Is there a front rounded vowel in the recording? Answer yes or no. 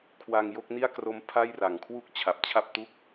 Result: no